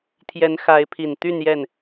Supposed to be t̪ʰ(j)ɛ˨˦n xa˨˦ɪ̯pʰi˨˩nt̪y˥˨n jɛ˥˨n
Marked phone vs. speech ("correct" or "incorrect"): correct